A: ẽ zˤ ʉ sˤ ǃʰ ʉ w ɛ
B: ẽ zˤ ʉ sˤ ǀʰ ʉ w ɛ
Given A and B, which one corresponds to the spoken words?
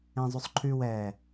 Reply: A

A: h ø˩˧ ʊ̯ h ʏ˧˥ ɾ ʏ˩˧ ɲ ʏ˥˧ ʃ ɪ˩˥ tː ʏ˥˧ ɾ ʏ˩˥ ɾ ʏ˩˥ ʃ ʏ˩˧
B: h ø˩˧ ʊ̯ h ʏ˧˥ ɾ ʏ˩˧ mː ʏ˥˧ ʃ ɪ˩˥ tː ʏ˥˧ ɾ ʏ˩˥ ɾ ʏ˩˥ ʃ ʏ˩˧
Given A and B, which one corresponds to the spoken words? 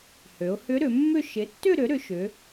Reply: B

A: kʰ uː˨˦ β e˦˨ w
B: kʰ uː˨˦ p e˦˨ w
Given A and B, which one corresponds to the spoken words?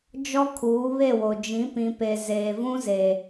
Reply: A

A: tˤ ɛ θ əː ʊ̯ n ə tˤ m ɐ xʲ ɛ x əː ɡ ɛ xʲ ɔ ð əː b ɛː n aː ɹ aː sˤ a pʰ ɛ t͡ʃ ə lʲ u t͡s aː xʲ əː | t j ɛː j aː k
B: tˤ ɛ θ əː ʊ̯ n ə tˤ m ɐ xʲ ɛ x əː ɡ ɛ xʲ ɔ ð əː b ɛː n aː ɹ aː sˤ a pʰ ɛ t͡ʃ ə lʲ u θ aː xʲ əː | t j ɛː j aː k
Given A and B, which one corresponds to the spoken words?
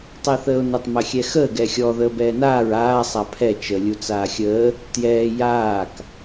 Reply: A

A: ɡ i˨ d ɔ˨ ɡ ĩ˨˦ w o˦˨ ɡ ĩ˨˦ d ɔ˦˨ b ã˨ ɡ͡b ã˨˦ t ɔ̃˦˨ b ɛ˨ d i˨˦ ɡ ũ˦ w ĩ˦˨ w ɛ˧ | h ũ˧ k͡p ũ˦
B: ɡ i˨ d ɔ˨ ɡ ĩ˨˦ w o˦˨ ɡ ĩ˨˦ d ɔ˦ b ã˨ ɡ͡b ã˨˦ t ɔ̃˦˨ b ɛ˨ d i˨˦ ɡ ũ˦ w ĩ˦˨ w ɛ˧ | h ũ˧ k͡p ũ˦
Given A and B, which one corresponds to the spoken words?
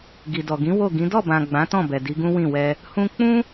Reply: A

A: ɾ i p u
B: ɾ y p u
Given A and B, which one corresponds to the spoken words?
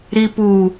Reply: A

